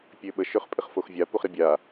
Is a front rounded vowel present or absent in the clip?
present